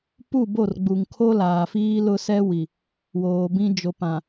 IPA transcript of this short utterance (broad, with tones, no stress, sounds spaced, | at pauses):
p u˦˨ b o˦˨ r ɡ͡b u˨ ŋ kʰ o˦ l aː˨ f iː˦ l ʊ˦ s ɛ˦ w i˨ | w oː˨ b ĩ˦ d͡ʒ o˨ p ã˨